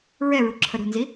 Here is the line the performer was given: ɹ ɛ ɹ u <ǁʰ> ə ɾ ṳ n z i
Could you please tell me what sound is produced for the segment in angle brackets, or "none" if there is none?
ǁʰ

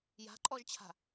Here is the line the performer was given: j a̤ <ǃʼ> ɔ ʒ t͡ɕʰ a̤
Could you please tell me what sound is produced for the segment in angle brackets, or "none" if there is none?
ǃʼ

